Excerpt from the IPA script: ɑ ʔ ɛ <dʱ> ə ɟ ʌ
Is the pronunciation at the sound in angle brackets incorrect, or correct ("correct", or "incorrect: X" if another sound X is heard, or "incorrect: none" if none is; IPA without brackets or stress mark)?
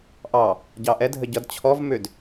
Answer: correct